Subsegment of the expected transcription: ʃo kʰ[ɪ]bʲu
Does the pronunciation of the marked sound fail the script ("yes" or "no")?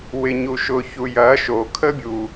yes